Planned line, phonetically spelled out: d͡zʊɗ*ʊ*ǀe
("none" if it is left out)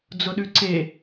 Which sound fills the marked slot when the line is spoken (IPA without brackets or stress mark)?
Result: ʉ